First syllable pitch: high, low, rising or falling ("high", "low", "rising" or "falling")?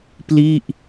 falling